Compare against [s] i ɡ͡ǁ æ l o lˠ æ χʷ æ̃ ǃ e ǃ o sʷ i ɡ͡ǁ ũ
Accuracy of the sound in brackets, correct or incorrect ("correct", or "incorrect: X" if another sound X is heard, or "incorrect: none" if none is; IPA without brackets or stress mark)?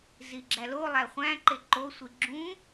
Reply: incorrect: z